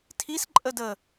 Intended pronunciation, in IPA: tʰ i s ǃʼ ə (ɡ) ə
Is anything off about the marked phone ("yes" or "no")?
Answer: yes